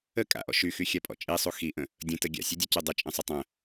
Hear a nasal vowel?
yes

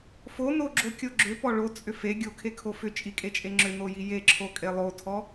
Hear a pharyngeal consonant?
no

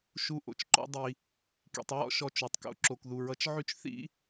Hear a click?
yes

